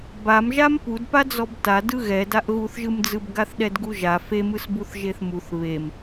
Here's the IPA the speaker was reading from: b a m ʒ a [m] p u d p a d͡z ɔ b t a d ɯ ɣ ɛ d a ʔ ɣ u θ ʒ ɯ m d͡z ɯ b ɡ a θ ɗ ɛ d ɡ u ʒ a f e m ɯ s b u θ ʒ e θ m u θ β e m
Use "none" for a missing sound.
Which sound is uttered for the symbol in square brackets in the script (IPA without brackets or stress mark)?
m